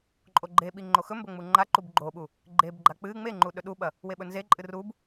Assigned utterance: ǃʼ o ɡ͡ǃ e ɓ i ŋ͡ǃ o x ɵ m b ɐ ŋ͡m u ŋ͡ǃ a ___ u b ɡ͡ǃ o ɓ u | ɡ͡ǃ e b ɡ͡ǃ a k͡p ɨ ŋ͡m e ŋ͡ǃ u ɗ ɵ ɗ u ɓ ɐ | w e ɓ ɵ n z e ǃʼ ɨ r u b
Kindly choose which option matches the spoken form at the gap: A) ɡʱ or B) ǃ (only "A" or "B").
B